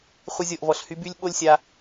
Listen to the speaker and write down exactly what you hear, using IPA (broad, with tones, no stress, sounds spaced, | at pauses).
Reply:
χʷ ə˧ zʲ ɤ˨ ʔ v ɔ˨ ɬ h y˧ b y˦ lʲ ɓ o˦ lʲ sʲ a˧